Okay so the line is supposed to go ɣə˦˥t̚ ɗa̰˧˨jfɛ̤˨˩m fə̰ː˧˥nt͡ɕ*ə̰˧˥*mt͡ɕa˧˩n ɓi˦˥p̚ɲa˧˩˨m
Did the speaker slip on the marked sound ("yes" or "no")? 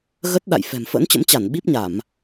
no